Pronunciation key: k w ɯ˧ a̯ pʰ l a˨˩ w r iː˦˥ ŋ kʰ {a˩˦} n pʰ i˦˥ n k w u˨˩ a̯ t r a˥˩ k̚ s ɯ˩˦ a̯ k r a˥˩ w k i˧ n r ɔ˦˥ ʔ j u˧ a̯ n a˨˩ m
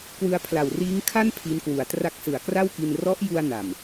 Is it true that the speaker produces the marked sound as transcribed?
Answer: no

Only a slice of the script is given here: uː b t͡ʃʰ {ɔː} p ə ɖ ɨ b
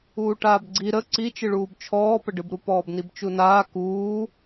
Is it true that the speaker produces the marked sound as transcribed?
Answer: yes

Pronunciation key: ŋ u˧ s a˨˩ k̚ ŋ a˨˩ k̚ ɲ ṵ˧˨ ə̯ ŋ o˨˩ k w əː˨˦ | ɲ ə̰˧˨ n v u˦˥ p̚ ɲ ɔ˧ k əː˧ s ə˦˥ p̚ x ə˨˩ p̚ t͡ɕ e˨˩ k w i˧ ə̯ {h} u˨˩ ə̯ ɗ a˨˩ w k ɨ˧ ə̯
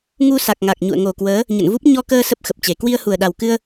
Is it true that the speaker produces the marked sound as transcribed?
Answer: yes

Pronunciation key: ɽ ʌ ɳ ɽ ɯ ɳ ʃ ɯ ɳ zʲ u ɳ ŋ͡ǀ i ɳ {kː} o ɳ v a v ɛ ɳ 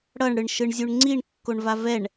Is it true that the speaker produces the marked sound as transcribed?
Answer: yes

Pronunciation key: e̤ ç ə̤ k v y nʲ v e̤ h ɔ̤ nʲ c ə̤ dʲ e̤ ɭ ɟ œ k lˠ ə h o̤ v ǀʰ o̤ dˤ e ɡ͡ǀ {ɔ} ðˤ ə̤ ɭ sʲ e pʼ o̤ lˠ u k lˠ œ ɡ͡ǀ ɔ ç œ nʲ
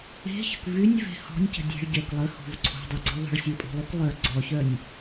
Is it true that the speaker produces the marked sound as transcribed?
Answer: yes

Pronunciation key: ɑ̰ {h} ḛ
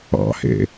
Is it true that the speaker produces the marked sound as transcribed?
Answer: yes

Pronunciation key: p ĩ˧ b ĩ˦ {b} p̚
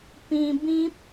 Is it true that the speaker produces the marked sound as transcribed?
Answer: no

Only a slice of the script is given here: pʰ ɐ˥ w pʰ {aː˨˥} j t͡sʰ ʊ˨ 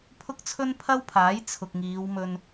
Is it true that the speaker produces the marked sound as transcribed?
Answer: yes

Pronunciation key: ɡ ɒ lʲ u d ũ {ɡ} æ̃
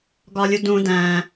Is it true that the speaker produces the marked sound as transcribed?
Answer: no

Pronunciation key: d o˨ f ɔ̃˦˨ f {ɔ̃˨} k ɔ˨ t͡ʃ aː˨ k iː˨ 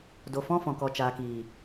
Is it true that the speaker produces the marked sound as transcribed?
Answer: yes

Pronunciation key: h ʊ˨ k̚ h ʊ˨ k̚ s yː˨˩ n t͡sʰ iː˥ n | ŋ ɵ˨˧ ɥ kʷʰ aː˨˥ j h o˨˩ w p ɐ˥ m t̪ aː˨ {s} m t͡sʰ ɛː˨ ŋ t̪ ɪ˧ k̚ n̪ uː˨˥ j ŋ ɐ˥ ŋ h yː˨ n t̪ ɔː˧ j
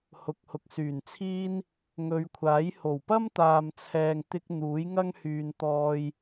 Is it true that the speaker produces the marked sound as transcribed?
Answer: no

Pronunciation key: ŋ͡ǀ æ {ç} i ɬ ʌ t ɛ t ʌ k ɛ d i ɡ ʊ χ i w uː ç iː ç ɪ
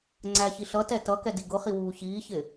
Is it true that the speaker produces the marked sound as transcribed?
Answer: yes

